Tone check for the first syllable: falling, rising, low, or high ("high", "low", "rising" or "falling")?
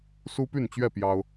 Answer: high